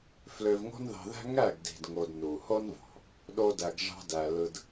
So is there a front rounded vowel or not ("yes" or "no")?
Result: yes